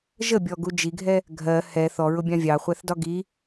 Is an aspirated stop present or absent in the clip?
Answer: absent